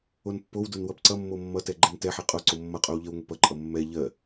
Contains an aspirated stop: no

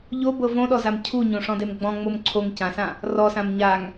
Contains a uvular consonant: no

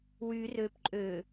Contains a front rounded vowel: yes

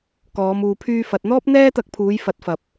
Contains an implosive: no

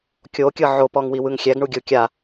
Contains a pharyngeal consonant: yes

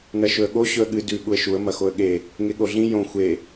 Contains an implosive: yes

